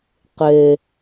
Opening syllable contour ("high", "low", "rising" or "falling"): low